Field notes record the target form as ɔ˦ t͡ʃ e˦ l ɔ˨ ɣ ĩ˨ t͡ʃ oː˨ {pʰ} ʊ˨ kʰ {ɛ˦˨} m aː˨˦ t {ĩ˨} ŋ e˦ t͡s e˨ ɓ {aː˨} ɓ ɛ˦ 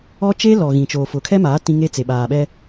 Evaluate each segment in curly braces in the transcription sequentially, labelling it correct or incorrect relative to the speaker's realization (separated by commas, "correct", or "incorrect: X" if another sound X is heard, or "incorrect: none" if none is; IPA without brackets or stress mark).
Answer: incorrect: f, incorrect: ɛ˦, incorrect: ĩ˦, correct